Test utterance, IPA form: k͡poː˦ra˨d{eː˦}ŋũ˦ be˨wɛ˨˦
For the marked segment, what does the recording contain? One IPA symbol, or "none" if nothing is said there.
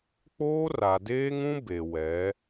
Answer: eː˦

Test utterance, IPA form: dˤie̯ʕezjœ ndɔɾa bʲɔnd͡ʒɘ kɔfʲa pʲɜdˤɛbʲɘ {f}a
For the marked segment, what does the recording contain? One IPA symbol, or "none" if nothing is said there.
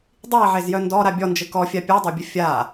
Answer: fʲ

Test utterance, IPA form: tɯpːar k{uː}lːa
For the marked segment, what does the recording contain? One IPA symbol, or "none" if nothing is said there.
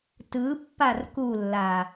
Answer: u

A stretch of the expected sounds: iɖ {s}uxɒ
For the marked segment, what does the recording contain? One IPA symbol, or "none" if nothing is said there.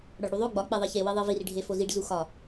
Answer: z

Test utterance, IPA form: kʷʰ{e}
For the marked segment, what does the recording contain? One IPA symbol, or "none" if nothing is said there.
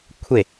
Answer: e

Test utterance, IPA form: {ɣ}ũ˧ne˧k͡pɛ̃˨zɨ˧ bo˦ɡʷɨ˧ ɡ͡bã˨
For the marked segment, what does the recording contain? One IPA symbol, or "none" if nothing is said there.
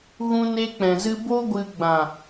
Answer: ɣ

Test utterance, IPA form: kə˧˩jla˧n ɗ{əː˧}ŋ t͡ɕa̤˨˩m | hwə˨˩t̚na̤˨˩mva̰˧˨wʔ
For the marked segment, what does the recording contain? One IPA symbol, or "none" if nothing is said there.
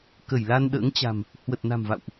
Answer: ə̰ː˧˥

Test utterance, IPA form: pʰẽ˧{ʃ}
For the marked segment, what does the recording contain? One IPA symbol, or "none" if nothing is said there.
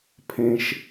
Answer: ʃ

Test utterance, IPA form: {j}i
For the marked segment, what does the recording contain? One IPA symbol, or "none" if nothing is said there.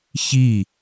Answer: ç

